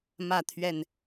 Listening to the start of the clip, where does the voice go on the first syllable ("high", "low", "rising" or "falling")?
falling